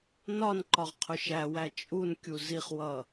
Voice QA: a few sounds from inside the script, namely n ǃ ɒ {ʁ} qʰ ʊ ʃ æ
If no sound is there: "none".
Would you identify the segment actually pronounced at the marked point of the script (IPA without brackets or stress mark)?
ʁ